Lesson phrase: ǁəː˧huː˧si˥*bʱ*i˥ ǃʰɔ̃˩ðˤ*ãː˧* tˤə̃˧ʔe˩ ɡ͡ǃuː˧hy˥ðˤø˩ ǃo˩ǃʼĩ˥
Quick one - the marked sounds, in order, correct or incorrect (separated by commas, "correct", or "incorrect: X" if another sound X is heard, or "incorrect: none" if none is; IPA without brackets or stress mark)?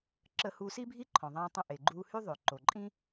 correct, correct